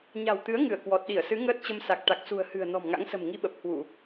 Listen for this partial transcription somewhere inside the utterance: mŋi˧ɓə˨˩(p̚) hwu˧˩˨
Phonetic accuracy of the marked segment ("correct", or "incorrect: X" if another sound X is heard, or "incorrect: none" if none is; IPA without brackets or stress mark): correct